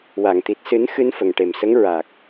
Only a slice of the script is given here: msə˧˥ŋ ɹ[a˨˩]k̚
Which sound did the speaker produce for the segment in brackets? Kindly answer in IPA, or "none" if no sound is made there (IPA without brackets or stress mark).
a˨˩